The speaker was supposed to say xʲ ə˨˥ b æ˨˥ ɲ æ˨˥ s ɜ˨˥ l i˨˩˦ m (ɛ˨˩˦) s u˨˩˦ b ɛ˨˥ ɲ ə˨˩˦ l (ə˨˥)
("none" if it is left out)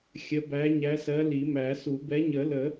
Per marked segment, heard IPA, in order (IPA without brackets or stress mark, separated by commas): æ˨˩˦, ə˨˩˦